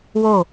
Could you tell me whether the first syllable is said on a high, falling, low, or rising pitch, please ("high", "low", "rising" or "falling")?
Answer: falling